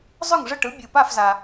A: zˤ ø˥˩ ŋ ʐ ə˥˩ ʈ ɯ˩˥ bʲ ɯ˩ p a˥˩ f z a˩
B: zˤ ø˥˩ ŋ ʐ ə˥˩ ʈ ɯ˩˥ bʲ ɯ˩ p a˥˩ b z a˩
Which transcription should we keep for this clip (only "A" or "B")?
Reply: A